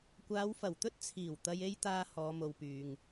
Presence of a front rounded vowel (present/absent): present